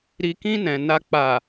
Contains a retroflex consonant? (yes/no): no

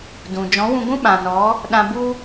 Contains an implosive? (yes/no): yes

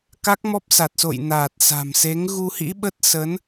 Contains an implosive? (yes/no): yes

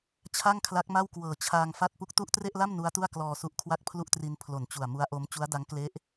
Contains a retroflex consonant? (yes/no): no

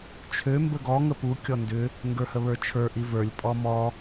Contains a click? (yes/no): no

